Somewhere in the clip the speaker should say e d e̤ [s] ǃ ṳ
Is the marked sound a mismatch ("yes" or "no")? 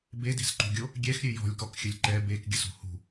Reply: no